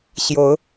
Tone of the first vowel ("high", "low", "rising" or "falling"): rising